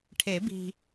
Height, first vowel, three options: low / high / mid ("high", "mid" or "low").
mid